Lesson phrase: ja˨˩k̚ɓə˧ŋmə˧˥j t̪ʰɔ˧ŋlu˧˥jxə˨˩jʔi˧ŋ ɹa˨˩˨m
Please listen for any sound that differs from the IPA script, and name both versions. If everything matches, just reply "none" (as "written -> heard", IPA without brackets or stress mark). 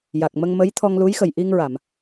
ɓ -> m